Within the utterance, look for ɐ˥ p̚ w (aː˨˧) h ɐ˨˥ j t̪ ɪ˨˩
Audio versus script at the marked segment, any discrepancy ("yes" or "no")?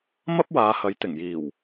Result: no